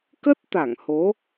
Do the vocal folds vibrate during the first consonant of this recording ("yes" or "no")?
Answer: no